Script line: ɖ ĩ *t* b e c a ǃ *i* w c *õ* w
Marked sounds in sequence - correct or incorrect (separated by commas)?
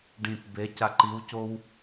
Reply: correct, correct, incorrect